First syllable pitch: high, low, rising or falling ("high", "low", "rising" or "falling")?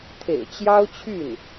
low